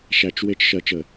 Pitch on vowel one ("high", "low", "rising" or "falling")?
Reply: low